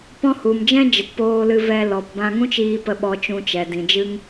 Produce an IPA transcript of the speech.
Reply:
p ɔ̃˦ h u˨ m d͡ʒ ɛ̃˦ d͡ʒ ə˨ t p oː˧ l ɨ˧ v ɛ˧ l ɔ˨ p b ã˧ ŋ ũ˦ t͡ʃ iː˧ p ə˧ ɓ ɔ˧ t͡ʃ ũ˧ t͡ʃ ɛ˨ d ĩ˨ d͡ʒ ɨ˦ ŋ

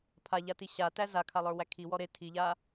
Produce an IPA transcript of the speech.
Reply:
pʰ a ʎ a t i ɕ a t æ z a kʰ a lˠ ə˞ w æ kʰ i w ɔ ɾ e tʰ i ʎ a

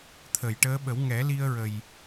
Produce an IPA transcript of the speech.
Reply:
t̪ʰ ə˨˩˨ j ʈ əː˧˥ ɓ ə˨˩˦ w ŋ ɛ˨˩˦ l i˧ ə̯ ɹ ə˨˩ j

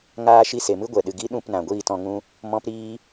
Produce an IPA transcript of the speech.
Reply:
ŋ aː˧ ʃ i˧ s e˨ m ɨ˦ ɡʷ ɛ˨ ɗ ɨ˨ ɡ i˦ ɗ ũ˦˨ p n ã˨ ɡʷ iː˦˨ t ɔ̃˧ ŋ ũ˦ | m ɔ̃˦ p ɾ iː˦

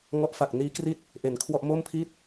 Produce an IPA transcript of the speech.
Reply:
ŋ ɔ˦˥ ʔ f a˨˩ k̚ n iː˦˥ k r i˥˩ t̚ | ʔ e˨˩ n kʰ w ɔ˥˩ ʔ m o˥˩ m pʰ i˥˩ t̚

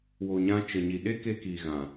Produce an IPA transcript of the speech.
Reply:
w o˨ ɲ ã˧ t͡ʃ ə˨ ɲ i˨ ɗ e˦ k e˧ k i˨ ɣ ã˨

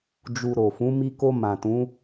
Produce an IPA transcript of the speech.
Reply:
d͡ʒ u˨ ɾ o˨ f ũ˨˦ m i˧ k o˧ m ã˨ t ũ˨˦

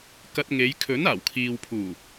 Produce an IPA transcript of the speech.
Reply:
k ɐ˧ t̚ ŋ e˨˧ j kʰ ɵ˨˥ n aː˨˩ w kʰ iː˨ w pʰ uː˨˩

